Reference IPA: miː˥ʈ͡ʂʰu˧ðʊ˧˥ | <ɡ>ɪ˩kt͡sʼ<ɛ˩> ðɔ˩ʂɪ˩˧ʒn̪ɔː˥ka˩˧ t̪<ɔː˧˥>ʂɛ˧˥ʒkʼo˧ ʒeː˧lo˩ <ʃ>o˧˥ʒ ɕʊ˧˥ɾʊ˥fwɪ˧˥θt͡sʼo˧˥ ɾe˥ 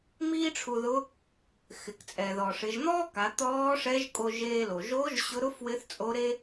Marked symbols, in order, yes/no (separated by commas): no, yes, yes, no